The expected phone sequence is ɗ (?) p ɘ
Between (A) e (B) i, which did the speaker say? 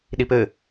B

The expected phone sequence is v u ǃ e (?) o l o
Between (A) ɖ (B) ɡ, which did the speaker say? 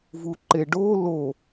A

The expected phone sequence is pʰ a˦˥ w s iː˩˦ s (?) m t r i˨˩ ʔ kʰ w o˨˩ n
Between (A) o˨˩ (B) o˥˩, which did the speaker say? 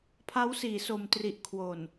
A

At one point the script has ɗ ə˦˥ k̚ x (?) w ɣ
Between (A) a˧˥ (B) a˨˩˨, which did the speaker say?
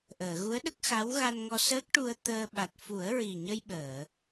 A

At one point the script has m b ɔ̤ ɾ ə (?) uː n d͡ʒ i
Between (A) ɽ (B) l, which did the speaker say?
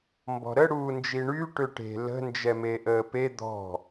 A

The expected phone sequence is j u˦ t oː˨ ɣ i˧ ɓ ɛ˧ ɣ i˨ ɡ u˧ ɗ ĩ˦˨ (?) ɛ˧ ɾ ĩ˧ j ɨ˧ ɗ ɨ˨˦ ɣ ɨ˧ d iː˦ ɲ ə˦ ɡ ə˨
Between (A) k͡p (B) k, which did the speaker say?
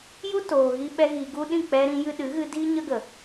A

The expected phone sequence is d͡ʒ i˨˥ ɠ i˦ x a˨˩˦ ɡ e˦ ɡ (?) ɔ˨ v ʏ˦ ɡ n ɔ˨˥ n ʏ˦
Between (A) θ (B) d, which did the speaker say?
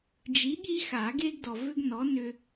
B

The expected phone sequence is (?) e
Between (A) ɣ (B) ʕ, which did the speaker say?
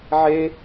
B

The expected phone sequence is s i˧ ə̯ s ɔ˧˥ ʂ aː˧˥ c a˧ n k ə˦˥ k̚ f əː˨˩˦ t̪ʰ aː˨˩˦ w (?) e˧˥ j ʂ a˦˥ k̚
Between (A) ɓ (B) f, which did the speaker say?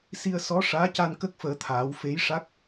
B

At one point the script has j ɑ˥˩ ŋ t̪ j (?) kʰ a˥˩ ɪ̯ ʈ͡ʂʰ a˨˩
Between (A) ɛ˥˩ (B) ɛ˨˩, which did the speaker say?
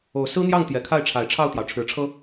B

